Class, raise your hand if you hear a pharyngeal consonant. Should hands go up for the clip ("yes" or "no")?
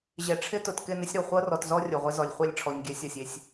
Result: no